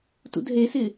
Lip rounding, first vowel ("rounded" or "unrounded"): rounded